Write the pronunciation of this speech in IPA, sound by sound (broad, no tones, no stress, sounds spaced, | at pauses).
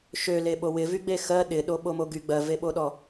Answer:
ʃ ø l e ɓ o w ɪ v y ɡ͡b e x ɜ ɗ ɪ ɗ o ɓ o m o ɡ y ɡ͡b ɜ v e ɓ o ɗ ɔ